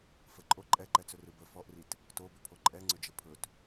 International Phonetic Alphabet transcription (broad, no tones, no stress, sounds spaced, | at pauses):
f ə ǃʼ o ǃʼ ɛ ǃ ɛ t͡s ɵ r ɯ b ə f ɔ ʔ r i t | t o b ʏ pʰ o ǃʼ ɛ ŋ͡ǀ ʏ d͡ʒ ə pʰ ɵ t